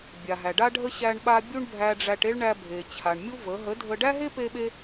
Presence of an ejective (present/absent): absent